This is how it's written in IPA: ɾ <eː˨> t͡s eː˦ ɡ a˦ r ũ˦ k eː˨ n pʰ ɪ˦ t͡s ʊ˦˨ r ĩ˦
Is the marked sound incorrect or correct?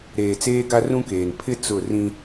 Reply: correct